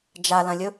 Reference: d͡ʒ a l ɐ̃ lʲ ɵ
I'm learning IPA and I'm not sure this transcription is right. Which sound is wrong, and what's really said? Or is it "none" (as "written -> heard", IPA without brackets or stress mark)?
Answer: none